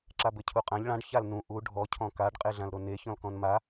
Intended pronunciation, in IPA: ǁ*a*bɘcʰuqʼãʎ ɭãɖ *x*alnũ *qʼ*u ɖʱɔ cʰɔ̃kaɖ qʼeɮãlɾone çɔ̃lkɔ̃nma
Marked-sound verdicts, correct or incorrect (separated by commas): correct, incorrect, incorrect